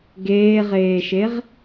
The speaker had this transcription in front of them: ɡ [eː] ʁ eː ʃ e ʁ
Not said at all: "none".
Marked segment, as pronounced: eː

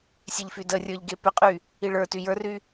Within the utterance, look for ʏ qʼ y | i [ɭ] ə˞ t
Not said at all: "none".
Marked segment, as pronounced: ɭ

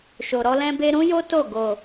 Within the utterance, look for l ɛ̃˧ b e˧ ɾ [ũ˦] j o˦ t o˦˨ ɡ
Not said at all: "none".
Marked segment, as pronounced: ũ˦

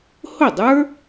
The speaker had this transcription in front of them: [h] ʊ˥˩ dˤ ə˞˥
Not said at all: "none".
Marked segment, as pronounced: h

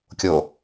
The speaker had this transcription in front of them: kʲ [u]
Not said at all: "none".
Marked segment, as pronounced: o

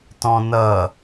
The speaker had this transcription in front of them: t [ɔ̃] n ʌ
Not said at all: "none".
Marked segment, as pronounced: ɔ̃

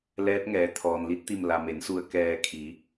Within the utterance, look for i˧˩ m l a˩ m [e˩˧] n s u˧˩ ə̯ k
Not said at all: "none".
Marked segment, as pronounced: e˩˧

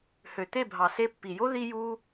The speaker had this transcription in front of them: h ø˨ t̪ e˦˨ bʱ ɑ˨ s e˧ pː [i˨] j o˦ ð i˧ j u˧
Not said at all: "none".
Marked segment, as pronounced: i˨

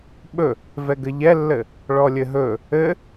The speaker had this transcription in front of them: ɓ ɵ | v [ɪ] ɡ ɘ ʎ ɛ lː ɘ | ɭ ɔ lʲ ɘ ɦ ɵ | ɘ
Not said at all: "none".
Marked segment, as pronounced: ɛ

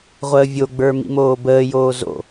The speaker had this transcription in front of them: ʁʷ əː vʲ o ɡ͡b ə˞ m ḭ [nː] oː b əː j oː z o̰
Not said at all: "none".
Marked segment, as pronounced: m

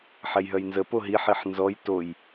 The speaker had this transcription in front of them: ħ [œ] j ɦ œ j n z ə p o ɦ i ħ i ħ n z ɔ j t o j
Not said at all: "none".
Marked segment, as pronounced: ɛ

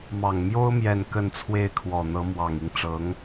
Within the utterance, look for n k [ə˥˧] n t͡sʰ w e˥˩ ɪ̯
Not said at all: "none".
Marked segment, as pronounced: ə˥˧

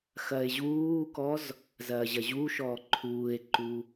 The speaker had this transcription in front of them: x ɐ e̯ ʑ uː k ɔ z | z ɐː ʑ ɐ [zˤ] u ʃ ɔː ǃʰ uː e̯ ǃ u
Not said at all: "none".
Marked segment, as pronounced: ʑ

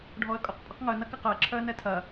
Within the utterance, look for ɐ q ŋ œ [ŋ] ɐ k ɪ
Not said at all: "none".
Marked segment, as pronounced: n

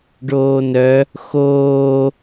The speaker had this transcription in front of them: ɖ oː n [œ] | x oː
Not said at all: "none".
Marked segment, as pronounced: œ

